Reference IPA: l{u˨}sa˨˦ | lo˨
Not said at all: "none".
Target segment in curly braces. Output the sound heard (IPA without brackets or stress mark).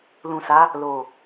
ũ˨